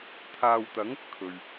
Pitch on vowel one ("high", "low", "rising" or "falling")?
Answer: low